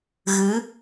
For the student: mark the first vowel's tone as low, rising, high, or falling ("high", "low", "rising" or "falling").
rising